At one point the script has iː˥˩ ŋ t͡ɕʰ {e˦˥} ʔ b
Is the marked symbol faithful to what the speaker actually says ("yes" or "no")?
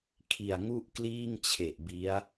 no